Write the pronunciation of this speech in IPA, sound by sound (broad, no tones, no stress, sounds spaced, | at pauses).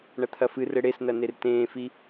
ɳ ɐ t̪ʰ ɐ f ɨ r ɘ ɽ e s n ɐ n e r t ẽː f i